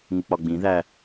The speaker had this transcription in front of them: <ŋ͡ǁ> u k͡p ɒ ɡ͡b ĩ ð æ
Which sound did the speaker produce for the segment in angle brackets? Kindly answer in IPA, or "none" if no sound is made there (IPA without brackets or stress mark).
ŋ